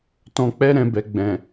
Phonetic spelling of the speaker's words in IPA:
t ɔ̃˧ k͡p ɛ˦ ɾ ɛ̃˧ b ɛ˨ ɡ͡b ɛ̃˨

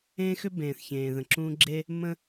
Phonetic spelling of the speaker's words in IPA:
ẽ˦ x ʏ˦ b ẽː˨ θ ç ẽː˨ ð ə̃˨ ǁ ũː˦ ɡ͡ǁ e˦ | m ə̃˦

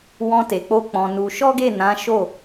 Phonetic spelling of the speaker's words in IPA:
w ɔ̃˧ t e˨ k͡p o˧ k͡p ɔ̃˧ n u˧ ʃ ɔ˦ ɡ e˦˨ n ã˨˦ ʃ o˦˨

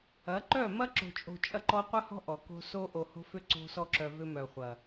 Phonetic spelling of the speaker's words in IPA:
ɐ˨˦ ǃ œ˦˨ m ɐ˦ ǁ o̤˨ t͡ʃʼ o̤˨ t͡ʃʼ ɐ˧ ǃ ɔ˧ qʷ ɐ˦ h ɔ̤˦ ʔ ɔ˨ k o̤˧ s o˧ ʔ o˧ h o̤˦ f ʏ˦ ǀ o̤˧ s ɔ˧ ǁ œ˨ v ʏ˧ m œ˨ χʷ ɐ˨

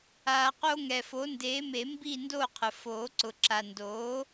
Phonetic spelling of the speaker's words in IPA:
aː˨ q o˦ ŋ ɛ˨ f o˩˥ n d eː˩˥ m e˨˩˦ m b i˥˨ n d oː˥˨ qʰ ə˨ f oː˨˩˦ ǀ ʊ˨ ǁ a˨ n d oː˩˥

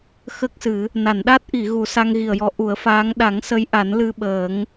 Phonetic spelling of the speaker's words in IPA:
x ə˦˥ k̚ s ɨ˨˩˦ | n a˨˩˨ n ɗ a˦˥ t̚ ʔ i˨˩˨ ɣ u˨˩˦ s a˧ ŋ ɣ i˨˩ ə̯ j ɔ˧˥ ʔ u˨˩˦ ə̯ f aː˧˥ ŋ ɗ a˨˩˦ ŋ s ə˧˥ j ʔ a˨˩˦ n l ɨ˧ ɓ əː˨˩˦ ŋ

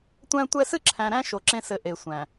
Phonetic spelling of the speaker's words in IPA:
tʷ æ̃˦ tʷ ɛ˦ s ɨ˦ ǁʰ æ̃˨ ɾ æ̃˦ ʃ o˨ ǁ ẽ˦ s ɘ˨ ʔ e˨ sʷ æ̃˨

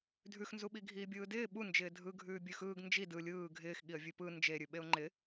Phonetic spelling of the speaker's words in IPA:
dʱ ʉ x n z u ɓ i ɡʱ iː bʲ ɯː d ɪː ɓ u n d͡ʒ ɪː dʱ ɯ ɡʱ ʉː bʲ ʉ x ɯː ɡ n d͡ʒ i d ɯ lʲ ɯː ɡʱ ɪː x ɠ i ə̯ vʲ ʉ p ɯ n d͡ʒ e ɾʲ ʉ ɓ e ʊ̯ ŋ͡ǃ ɪ

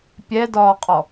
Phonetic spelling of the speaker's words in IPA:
pʲ ɛ d ɒː qʼ ɔ

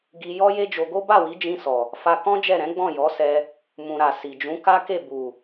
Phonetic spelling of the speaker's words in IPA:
ɡ i˧ j ɔ˦ j e˦ d͡ʒ o˧ ɡ o˦ b a˦˨ w i˨˦ d͡ʒ ĩ˧ s ɔ˨ | f a˧ k ɔ̃˦ d͡ʒ ɛ˦˨ ɾ ɛ̃˨˦ ɡ͡b ɔ̃˦˨ j ɔ˨˦ s ɛ˧ | m ũ˨ ɾ a˨ s i˨ d͡ʒ ũ˨˦ k a˦ k e˦˨ b u˨

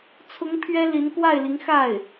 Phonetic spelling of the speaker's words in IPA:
t͡sʰ ʊ˧˥ ŋ pʰ ɥ ɛ˥ l i˧˥ n k w a˥˩ ɪ̯ l i˧˥ ŋ x a˥˩ ɪ̯

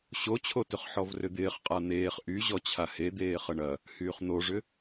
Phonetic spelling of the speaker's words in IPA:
ɕ o t͡ɕʰ o t ʏ χ ħ ɔ v r ʏ d̪ ɪː χ qʼ a n̪ eː χ ʔ y ʑ ɔ t͡ɕʰ a h e d̪ eː χ ə ɳ ɐ | h yː χ n̪ o ʐ ʏ

